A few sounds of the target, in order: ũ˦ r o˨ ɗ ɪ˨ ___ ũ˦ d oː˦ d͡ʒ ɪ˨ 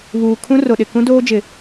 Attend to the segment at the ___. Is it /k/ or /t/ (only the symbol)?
k